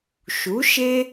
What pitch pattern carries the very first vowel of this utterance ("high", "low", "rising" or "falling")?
rising